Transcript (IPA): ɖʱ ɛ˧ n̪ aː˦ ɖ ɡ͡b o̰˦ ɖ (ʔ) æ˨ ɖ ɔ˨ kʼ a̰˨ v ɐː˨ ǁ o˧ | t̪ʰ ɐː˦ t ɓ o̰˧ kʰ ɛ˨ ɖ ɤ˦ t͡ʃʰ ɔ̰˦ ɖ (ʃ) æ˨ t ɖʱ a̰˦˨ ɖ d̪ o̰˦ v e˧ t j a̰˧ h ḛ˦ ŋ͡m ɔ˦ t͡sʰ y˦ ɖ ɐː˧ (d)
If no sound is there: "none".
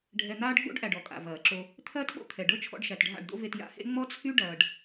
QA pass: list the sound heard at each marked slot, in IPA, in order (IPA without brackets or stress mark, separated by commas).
ʔ, ʃ, ɖ